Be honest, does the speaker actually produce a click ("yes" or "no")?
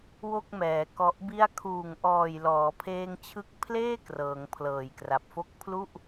no